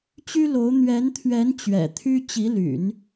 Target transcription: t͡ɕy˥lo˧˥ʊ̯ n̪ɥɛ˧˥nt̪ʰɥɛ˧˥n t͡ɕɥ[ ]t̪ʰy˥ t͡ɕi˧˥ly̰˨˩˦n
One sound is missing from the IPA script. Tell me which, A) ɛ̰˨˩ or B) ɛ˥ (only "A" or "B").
A